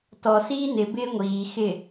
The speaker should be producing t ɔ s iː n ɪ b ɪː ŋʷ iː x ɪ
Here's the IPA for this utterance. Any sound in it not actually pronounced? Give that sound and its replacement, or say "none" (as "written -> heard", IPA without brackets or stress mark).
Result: none